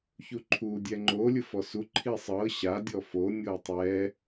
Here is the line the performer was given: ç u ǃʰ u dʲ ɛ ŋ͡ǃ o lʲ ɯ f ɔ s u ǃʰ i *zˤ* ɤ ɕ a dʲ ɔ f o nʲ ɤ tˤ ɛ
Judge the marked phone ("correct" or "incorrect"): incorrect